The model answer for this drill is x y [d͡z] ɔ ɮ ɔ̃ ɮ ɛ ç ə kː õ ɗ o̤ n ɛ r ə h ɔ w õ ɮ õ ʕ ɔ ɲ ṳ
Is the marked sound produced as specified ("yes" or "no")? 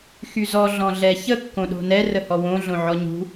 no